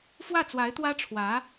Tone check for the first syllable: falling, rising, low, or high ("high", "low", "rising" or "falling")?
falling